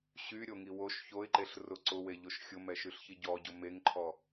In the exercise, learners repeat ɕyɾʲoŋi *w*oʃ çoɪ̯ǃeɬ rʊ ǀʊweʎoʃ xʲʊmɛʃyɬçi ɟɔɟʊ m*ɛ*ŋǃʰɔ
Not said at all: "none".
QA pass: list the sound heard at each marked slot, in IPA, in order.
w, e

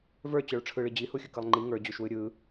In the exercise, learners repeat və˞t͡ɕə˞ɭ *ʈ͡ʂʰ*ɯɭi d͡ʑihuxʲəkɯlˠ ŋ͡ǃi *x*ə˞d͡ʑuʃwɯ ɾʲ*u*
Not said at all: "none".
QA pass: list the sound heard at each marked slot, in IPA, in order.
ʈ͡ʂʰ, ŋ, ɯ

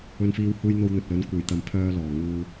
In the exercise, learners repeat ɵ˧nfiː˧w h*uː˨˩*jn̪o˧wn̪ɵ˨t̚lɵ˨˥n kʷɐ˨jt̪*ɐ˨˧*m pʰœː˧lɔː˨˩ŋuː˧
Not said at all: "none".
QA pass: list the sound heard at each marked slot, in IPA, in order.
uː˧, ɐ˨˧

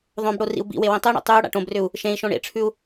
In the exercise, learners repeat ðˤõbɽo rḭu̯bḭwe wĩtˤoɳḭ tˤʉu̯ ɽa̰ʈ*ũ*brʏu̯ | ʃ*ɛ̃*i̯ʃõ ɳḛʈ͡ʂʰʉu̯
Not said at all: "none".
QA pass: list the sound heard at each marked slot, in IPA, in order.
õ, ẽ

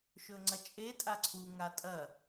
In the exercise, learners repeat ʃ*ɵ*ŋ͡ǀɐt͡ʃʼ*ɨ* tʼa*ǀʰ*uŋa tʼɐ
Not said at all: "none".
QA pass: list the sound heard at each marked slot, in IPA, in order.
ɵ, e, ǀʰ

